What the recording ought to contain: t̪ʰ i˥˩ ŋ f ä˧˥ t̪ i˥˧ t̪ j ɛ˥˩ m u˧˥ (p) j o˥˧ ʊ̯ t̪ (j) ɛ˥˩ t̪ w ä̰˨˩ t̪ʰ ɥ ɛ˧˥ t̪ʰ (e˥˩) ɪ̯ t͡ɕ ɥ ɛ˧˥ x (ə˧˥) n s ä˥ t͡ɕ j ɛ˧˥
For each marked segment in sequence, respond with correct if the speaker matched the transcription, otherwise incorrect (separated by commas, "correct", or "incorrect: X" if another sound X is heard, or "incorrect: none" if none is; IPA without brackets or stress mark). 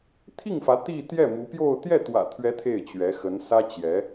correct, correct, correct, correct